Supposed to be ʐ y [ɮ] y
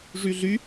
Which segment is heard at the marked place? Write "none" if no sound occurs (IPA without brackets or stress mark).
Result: ɮ